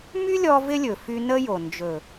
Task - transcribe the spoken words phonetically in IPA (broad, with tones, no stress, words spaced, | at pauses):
my˦lʲɔ˧ vɪ˦lʲɵ˨fy˧ nə˦jo˨ nd͡ʒɵ˨